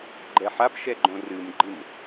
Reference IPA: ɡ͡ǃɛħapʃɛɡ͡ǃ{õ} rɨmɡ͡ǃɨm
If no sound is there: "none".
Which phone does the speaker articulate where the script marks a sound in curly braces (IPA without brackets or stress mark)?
õ